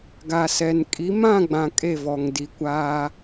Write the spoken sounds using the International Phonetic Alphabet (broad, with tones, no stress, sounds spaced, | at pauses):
ɡ a˨ s ɛ˨ n kʼ i˨˦ m ã˦˨ ɡ͡b ã˨ kʼ e˦˨ v ɔ˨ ŋ d i˨ kʷ aː˦